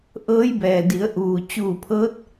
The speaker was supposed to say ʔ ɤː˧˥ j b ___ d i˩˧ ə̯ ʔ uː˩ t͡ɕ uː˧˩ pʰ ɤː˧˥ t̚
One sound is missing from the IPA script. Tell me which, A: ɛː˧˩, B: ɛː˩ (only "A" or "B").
B